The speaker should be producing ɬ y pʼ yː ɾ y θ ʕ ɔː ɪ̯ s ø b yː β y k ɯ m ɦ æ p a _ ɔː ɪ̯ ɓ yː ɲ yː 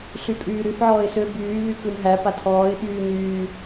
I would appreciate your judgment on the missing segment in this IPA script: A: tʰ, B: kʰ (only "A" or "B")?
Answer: A